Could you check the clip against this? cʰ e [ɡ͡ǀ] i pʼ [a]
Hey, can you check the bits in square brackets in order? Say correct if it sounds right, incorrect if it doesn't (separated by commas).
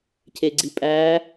correct, incorrect